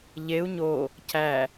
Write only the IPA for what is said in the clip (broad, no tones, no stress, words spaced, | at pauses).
ʎeu̯ ɲo | cʰæ